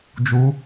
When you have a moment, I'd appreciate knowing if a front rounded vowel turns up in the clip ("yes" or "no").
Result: no